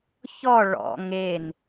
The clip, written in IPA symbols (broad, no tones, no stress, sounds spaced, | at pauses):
ç ɔ ɭ ɔ̰ ŋ e n